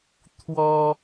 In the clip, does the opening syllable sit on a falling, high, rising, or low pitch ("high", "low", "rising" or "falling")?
high